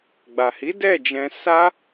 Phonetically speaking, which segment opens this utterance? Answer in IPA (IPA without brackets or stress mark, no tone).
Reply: ɡ͡b